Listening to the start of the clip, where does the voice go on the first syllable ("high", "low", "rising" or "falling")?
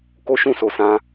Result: high